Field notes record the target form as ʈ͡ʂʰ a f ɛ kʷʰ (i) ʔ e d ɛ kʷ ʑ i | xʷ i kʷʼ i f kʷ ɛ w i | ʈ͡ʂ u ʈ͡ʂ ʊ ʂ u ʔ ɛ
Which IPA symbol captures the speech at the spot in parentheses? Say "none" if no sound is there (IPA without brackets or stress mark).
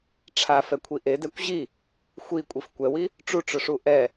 i